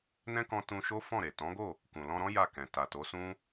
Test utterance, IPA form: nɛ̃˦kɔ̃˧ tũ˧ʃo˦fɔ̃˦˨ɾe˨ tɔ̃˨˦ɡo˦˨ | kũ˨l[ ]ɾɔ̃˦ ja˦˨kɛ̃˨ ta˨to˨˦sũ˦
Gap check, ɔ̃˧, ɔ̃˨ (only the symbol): ɔ̃˧